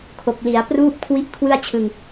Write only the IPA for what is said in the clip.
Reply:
kʰo˨˩k̚li˩˦a̯pruː˥˩p̚ kʰwi˥˩ʔkʰwɯ˥˩a̯ t͡ɕʰɯ˧ŋ

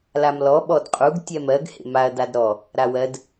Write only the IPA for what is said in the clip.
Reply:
lamlɔ ɓɔdqʼuɡ tʲɛmɜɡ hḛmaɐ̯ dadɾɔ | ɾawɜd

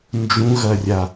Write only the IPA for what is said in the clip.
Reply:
nd͡ʒũɣɐrʲa

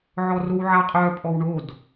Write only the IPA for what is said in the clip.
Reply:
ʕɔrowʕaqʼœ pʼɔwɳod

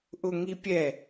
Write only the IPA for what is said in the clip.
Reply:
ʔʊŋipʲɛ

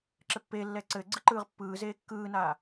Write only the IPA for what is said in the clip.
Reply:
ǁɘpːeːlːɛː ǀɘːɡ͡ǀɯ ǃɯːʁpːɯː zeːkːɯːnaː

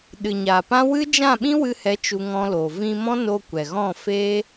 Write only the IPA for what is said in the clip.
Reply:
ɗɨ˨ɲaː˨pã˦ wɨ˦d͡ʒã˦˨ ɓĩ˦wɨ˧hɛ˨˦ t͡ʃu˧ŋɔ̃˧loː˨ vĩ˧mɔ̃˦no˧ kʷɛ˨ɣɔ̃˦˨ fe˦

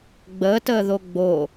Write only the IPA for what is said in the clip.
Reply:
ɡ͡bəːtəːðo ɡ͡bo

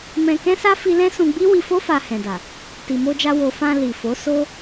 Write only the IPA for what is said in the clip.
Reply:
mɛ̃˧ kɛ̃˦sa˦ fi˦ lɛ̃˦sũ˧ɡ͡bi˦ wi˧fo˦ fa˧hɛ̃˨da˨ | ti˨mo˧d͡ʒa˧ wo˧ fã˧ li˨fo˨˦so˦

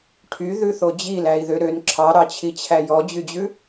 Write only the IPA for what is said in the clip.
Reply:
ʈʰyðʉθo d͡ʑilæi̯ðø ɾøn ǁʰɑɾɑt͡ɕʰit͡ɕʰæ jɔd͡ʑyd͡ʑʉ

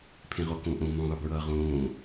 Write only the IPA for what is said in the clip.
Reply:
pʰẽʁokõʔõ mõ ðˤɯbɹʌːʁõː

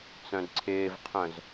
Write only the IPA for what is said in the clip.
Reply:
t͡sœ̃dǀʰɪːvqʰœ̃z

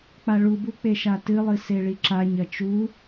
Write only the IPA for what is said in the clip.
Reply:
k͡paɭubu k͡peʃatɨlˠɨ seɭiǁaɲɐ t͡ʃu

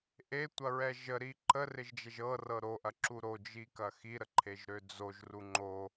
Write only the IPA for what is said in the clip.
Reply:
ʔetʷɐɹɛ ʒəɾi ǃərɪʒd͡ʒɛʒ ɤrɤ ɾoʔɐǁu ɾod͡ʒikɐ xiɾəǃʰeʒɾø d͡zoʒru ŋ͡ǃo

